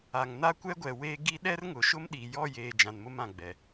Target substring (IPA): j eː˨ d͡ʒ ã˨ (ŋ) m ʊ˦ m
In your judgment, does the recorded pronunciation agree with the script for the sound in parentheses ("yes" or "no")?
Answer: no